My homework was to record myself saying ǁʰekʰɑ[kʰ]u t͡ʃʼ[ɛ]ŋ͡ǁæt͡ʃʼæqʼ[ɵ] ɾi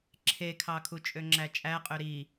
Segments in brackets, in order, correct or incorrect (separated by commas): correct, incorrect, incorrect